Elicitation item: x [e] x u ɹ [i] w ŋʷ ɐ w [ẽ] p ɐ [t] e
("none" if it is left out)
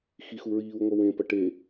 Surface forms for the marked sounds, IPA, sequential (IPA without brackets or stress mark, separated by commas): i, iː, ẽ, ʈ